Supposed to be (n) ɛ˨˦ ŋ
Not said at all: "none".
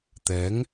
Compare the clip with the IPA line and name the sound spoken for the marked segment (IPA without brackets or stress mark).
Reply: t̪